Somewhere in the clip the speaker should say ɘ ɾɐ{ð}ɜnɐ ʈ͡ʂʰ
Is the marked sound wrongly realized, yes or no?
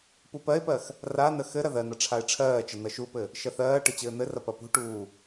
no